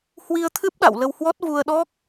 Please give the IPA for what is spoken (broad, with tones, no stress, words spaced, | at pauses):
hwi˧ə̯t̪ʰɨ˦˥p̚ɗa̰˧˨w lə˧whwɔ˦˥t̚ vu˧ə̯ɗɔ˦˥k̚